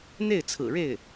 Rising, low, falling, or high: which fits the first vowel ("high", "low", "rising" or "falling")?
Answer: falling